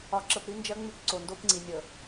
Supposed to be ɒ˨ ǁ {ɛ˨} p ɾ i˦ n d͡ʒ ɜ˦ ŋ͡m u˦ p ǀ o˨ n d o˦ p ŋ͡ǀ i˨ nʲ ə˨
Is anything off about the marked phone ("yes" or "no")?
yes